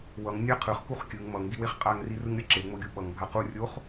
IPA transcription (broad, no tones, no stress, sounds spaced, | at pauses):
w ʌ ŋ nʲ a qʰ ɯ χ k u χ kʲ ɯ ŋ m ʌ ŋ ɡ i w e χ qʼ a ŋ r i r ɯ ŋ ɾʲ ʌ ǁ e ŋ͡m o ɡʲ u ɓ ʌ ŋ bʱ a q u rʲ o χ